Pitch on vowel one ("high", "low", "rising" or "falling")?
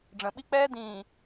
low